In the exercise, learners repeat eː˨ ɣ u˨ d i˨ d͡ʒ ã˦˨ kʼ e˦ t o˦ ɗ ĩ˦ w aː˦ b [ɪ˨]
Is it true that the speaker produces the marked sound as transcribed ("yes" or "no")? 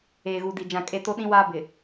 yes